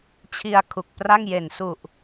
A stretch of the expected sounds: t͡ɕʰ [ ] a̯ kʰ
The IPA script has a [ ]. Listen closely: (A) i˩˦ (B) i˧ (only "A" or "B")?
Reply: B